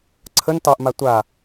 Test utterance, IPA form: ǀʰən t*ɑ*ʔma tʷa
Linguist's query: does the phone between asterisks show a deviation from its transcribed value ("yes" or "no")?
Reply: no